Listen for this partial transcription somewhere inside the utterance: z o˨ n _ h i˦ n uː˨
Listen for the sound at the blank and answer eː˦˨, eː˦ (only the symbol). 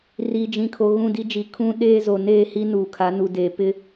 eː˦˨